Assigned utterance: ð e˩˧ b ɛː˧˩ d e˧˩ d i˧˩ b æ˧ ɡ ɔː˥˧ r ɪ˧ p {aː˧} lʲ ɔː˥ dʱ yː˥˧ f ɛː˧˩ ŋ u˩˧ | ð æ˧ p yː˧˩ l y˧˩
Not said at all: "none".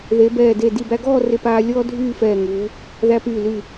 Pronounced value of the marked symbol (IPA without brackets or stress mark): aː˧